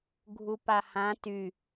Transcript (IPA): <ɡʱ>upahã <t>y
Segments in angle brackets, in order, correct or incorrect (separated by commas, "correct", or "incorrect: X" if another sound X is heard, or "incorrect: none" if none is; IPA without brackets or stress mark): correct, correct